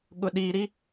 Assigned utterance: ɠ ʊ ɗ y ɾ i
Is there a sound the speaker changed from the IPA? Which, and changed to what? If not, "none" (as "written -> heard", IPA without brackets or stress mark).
y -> i